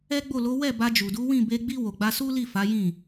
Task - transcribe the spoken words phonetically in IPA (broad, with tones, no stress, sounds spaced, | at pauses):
ɛ˦ ɡ͡b o˦˨ l o˨˦ w ɛ˦˨ b a˧ d͡ʒ u˨ d u˨˦ w ĩ˦˨ b e˧ ɡ͡b i˧ w o˨ ɡ͡b a˧ s u˦ l i˦˨ f a˨˦ j ĩ˦˨